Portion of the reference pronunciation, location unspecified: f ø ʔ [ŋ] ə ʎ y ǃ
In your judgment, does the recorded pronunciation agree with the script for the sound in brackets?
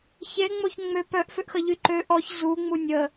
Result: no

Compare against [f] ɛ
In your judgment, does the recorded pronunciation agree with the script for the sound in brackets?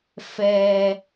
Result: yes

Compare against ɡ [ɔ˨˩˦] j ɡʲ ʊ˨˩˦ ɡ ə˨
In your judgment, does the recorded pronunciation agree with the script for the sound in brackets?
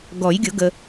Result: yes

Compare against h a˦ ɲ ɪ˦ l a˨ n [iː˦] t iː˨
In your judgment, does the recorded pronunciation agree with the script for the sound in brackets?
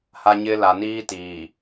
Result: yes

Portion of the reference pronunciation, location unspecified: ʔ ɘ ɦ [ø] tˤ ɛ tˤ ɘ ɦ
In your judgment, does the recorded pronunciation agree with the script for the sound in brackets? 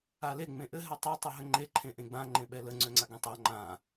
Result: no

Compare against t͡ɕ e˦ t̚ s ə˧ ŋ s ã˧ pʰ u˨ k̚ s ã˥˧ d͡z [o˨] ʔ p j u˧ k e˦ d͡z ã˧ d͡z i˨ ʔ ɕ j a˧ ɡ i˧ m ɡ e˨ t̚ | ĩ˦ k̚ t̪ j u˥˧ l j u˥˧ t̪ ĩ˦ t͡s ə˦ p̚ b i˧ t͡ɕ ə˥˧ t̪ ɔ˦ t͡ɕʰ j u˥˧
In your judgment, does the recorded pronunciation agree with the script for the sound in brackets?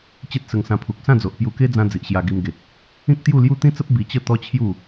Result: yes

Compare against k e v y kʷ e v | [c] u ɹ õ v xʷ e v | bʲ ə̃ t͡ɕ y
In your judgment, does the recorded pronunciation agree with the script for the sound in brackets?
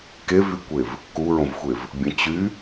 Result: no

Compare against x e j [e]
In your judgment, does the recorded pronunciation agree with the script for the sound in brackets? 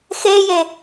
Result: yes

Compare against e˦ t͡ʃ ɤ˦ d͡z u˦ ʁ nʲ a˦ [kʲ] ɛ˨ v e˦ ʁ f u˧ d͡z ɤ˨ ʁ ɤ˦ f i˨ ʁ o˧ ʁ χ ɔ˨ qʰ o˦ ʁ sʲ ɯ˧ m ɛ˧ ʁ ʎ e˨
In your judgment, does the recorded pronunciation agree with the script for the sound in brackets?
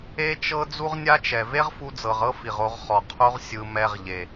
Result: no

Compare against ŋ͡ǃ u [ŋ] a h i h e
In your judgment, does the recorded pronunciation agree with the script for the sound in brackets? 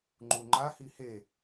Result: no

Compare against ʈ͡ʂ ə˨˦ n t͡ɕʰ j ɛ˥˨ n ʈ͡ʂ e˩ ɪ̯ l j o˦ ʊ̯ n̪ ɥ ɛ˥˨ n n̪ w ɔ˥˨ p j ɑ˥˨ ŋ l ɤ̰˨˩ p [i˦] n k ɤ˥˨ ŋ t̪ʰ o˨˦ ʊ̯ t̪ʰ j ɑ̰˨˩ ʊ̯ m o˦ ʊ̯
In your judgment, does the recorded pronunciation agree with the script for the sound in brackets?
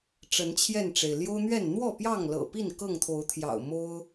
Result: no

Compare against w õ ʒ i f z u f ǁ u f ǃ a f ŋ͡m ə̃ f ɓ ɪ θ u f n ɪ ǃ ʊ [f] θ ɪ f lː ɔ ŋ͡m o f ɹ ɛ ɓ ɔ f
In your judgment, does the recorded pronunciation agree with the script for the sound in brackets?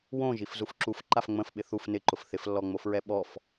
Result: yes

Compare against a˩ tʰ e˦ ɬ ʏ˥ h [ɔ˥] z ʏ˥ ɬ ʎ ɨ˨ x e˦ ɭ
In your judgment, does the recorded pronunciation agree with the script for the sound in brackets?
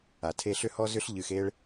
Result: yes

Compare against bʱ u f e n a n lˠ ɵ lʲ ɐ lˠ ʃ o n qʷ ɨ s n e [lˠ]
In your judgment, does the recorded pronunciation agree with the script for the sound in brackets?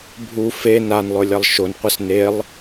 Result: yes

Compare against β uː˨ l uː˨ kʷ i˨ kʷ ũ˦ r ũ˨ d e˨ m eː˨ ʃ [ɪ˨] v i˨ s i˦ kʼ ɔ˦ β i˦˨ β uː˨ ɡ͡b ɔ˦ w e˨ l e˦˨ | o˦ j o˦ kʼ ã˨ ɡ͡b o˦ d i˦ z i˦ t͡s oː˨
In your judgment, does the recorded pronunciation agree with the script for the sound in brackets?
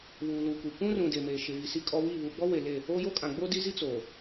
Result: yes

